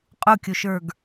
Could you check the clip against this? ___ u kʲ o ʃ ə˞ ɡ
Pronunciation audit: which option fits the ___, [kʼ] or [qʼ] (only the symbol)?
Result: qʼ